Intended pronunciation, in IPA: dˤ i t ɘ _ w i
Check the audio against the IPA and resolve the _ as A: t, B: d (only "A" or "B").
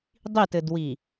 B